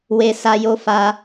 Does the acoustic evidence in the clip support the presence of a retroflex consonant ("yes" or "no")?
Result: no